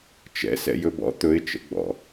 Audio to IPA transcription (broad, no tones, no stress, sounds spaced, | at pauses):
t͡ʃ ɛ̰ s ɛ̰ j ɵ b ɔ̰ t̪ ɵ ɪ̯ t͡ʃ ə̰ ɡ͡b ɔ̰